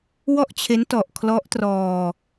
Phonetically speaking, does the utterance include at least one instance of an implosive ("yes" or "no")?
no